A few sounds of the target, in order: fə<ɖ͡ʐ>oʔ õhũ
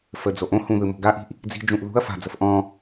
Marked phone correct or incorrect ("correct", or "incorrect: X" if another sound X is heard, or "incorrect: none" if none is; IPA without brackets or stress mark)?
incorrect: d͡z